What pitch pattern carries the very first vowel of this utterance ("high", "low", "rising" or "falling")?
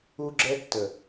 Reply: high